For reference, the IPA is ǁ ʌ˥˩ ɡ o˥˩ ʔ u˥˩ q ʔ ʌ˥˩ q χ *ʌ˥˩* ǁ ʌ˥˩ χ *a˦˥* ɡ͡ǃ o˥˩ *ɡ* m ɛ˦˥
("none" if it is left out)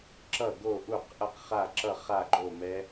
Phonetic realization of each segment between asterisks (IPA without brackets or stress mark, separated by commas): a˥˩, a˥˩, none